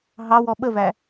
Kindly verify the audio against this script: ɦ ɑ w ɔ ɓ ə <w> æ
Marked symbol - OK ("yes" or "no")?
no